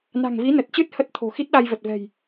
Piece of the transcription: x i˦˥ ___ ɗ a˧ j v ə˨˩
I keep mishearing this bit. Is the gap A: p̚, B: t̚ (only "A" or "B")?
B